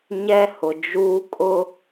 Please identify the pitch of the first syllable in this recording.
high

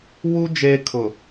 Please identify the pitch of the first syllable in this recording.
high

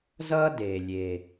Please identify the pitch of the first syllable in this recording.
high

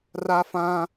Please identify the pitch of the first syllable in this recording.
high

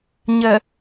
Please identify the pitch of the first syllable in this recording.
low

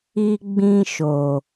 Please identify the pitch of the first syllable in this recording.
high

